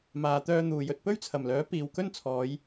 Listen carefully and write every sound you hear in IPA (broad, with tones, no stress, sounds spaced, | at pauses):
m aː˨ t̪ œː˧ n̪ uː˨ j ɵ˧ t̚ p ɵ˥ ɥ t͡sʰ ɐ˨˩ m l œː˨˥ p iː˨ w k ɵ˥ n t͡sʰ ɔː˨˧ j